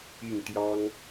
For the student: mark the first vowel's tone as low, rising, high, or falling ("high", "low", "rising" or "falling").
falling